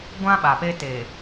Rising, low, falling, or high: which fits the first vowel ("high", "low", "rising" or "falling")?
high